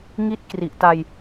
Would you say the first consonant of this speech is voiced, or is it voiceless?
voiced